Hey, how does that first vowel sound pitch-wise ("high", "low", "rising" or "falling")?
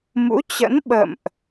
rising